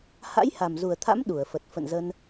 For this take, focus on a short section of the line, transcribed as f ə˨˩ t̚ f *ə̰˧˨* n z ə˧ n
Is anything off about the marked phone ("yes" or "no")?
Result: no